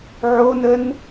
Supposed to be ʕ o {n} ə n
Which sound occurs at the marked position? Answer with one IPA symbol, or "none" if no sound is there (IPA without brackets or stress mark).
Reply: n